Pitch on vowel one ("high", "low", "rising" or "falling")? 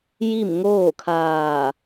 falling